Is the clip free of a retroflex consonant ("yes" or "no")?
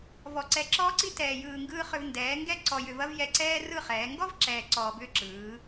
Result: yes